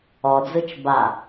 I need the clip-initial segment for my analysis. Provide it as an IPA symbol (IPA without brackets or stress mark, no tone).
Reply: ɔ